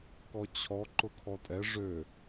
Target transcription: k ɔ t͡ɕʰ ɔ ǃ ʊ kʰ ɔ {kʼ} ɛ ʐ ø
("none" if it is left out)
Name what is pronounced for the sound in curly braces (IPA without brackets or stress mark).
tʼ